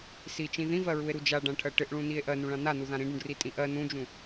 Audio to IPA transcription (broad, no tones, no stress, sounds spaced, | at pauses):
s i t͡ʃ ĩ ð ĩ v ɜ ɹ u e̯ ɾ u d͡ʒ a ɖ ã ʈʰ ɜ ʈ ɪ ʔ ɭ ũ n i e̯ ʔ ɜ n ũ ɭ ã n a n u ð ã ɾ ĩ ɖ ũ ɖ r i tʼ ĩ ʔ ɜ n ũ d͡ʒ ũ